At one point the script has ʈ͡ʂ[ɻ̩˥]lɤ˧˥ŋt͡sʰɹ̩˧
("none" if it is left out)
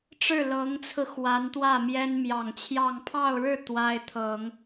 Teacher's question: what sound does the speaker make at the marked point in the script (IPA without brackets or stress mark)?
ɻ̩˥˩